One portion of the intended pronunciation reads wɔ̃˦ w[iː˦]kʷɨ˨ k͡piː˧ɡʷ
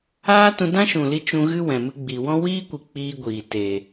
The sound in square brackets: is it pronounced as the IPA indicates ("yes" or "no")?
yes